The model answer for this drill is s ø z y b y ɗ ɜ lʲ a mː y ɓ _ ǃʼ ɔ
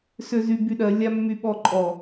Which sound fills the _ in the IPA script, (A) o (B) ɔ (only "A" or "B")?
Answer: B